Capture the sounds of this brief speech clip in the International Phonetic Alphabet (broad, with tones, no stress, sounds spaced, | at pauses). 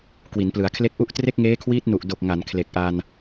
k w i˩˦ n p l ɯ˩˦ a̯ kʰ l e˦˥ k̚ ʔ u˦˥ ʔ t r e˥˩ k̚ ŋ eː˦˥ kʰ w iː˦˥ t̚ n u˨˩ ʔ d o˨˩ k̚ ŋ a˩˦ n kʰ l e˨˩ k̚ ʔ a˧ n